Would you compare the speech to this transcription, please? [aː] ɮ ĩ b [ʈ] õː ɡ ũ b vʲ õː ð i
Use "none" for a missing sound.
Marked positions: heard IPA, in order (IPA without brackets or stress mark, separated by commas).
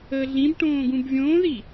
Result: əː, ʈ